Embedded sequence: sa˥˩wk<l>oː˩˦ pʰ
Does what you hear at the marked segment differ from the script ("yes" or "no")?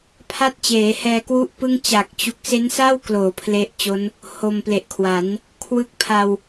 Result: no